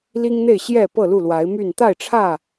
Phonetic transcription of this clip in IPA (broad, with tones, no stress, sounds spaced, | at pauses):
l i˦ ŋ n̪ e˥˨ ɪ̯ ɕ j ɛ˥˨ p ɤ˥˨ l u˥˨ l w a˨˦ ɪ̯ m y˥˨ n t̪ a˥˨ ɪ̯ ʈ͡ʂʰ ä˥˨